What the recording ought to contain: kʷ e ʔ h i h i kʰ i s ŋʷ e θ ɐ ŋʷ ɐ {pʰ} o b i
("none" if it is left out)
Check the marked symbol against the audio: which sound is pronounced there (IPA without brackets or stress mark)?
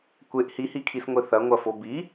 f